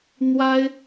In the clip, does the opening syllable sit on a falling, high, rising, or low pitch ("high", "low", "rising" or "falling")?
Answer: high